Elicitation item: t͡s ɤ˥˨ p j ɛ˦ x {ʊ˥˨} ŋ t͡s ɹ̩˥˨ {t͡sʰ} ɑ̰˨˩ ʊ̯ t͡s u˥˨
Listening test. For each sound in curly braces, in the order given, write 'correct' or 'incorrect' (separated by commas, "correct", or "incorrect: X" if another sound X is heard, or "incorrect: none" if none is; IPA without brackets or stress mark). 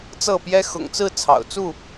incorrect: ʊ̰˨˩, correct